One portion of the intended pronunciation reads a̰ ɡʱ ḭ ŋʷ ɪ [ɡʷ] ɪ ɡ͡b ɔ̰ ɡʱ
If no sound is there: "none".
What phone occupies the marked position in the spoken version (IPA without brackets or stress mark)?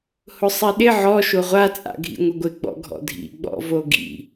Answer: ɡʷ